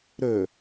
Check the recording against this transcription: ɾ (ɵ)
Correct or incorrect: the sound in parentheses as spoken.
correct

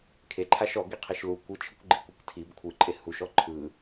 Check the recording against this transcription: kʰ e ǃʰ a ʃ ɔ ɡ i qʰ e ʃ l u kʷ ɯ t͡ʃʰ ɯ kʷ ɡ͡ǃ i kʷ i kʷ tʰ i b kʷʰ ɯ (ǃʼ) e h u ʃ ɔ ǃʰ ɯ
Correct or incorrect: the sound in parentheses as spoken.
correct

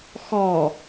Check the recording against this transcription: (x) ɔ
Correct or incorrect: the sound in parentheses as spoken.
correct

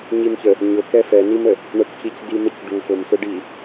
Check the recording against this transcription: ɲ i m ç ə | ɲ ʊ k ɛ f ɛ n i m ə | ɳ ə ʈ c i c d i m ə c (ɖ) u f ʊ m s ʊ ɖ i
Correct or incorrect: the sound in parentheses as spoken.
correct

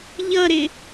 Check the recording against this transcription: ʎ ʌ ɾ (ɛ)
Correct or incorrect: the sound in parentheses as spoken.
incorrect: ɪ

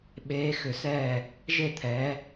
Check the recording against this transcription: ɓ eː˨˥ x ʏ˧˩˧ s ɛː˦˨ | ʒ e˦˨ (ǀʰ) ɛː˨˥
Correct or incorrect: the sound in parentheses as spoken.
incorrect: t̪ʰ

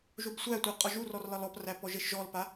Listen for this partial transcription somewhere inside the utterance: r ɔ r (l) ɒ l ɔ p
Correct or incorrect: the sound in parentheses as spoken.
correct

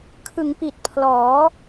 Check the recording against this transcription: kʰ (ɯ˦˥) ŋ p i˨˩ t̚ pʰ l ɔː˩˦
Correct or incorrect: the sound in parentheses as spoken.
incorrect: ɯ˩˦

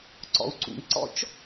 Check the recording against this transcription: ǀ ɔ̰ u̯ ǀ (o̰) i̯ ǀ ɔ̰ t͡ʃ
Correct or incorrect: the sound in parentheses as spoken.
incorrect: ṵ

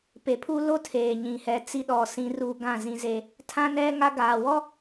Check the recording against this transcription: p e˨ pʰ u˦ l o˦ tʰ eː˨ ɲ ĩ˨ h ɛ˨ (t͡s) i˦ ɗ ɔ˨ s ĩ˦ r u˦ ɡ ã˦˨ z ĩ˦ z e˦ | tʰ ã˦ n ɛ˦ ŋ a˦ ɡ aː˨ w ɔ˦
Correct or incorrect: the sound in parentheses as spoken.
correct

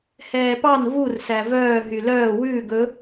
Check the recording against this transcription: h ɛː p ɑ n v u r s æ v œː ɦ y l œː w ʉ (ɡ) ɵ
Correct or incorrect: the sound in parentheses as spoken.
correct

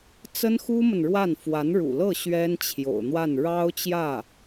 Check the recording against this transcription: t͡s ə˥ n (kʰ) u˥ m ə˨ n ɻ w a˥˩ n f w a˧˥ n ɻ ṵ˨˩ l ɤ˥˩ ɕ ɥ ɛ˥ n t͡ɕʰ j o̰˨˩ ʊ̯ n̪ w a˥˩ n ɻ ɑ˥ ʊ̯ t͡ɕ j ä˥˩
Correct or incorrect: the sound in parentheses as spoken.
incorrect: x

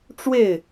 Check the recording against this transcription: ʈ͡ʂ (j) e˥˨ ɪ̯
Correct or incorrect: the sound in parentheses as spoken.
incorrect: w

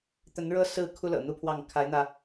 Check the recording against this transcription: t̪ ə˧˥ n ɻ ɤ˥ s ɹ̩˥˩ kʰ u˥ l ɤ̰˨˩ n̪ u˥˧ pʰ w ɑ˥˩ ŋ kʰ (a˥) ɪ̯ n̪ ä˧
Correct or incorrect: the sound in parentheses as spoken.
incorrect: a˧˥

